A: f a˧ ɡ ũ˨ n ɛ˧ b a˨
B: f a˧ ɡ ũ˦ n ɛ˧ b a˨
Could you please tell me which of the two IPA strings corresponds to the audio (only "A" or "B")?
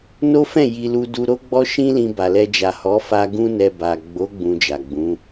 B